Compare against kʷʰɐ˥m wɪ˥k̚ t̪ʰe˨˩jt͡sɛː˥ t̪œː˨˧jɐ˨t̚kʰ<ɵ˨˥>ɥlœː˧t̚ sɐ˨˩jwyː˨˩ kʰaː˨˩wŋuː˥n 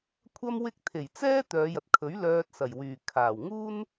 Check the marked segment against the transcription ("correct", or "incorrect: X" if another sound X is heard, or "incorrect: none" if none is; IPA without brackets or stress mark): correct